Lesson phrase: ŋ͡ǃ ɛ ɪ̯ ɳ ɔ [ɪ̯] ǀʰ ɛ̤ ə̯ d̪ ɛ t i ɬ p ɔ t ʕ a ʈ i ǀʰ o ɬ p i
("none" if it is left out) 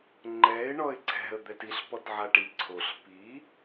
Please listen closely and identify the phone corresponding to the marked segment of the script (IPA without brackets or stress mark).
ɪ̯